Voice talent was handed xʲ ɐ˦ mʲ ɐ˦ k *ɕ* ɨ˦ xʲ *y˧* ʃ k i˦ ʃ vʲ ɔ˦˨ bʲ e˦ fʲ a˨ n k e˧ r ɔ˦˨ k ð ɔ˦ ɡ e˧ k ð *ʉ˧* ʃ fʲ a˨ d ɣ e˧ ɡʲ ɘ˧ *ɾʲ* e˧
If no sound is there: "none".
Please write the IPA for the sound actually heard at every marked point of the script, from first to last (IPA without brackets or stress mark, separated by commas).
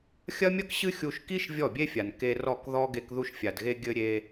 ɕ, u˧, u˧, ɾʲ